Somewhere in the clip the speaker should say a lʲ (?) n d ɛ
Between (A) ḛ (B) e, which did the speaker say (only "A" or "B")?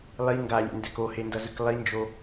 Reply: A